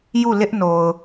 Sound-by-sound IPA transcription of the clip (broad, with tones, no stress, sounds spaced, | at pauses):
j u˦˨ l ɪ˦ ʔ n o˨ ʊ̯